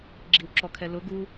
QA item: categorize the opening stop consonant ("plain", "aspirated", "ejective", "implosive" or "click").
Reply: click